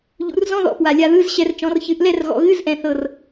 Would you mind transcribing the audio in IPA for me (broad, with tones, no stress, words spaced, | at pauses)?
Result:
ʎṵ˩˧rzɔ̃˧˥˧ðɔ̰˨˩ pwa˨˩lʲa˧ðɯ˧˥˧zɕɛ˧r t͡ʃɔ̃˩˧rçɨ˩˧ʔlɛ˥˨rɣɔ̰˨˩ ɣɨ˧˥˧zʔɛ̃˨˩θɤ˨˩r